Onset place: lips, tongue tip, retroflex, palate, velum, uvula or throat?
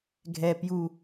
velum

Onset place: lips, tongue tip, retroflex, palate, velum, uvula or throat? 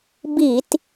lips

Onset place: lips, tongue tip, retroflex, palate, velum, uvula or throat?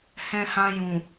throat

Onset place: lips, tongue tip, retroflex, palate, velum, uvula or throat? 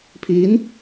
lips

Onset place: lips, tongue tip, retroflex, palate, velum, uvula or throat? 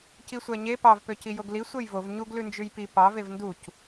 palate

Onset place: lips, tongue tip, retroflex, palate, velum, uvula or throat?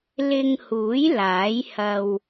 tongue tip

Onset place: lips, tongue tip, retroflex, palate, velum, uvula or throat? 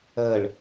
retroflex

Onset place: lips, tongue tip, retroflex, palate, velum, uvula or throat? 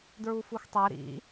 tongue tip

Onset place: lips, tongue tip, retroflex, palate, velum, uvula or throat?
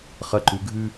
uvula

